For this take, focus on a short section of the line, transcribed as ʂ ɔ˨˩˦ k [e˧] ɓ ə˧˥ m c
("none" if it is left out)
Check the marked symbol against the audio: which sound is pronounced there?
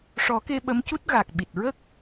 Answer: e˧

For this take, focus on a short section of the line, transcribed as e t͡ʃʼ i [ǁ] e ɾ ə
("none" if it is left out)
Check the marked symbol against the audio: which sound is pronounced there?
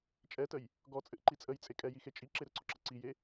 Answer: ǁ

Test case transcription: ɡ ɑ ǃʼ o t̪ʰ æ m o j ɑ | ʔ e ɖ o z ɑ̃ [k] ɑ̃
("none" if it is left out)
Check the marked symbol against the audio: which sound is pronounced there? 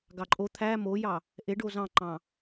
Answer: ǃ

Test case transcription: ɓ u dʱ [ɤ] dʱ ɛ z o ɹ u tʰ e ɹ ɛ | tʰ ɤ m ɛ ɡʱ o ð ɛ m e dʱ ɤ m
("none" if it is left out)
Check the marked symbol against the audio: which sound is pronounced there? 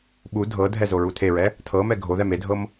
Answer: ɤ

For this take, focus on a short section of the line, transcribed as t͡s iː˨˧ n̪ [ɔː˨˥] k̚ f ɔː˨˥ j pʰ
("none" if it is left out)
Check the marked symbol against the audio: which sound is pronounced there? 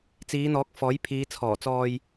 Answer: ɔː˨˥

